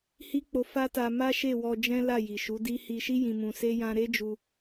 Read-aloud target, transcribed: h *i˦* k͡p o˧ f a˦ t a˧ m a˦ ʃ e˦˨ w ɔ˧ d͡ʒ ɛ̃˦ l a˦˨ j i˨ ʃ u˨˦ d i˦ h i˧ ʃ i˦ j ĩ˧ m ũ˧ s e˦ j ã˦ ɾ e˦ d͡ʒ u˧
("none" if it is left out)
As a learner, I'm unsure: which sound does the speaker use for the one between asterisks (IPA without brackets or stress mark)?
i˦